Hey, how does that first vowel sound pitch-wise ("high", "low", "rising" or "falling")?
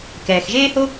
low